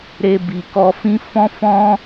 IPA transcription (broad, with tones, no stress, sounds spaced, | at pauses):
ɾ e˧ b i˨ k ɔ˧ f ĩ˦ f ɔ̃˦ f ɔ̃˦